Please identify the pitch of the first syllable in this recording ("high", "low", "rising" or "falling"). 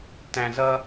low